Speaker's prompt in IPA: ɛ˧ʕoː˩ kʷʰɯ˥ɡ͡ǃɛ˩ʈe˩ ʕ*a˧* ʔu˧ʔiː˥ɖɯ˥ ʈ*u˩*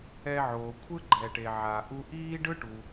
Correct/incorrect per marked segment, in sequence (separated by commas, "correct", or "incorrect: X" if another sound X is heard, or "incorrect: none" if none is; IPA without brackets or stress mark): incorrect: a˩, correct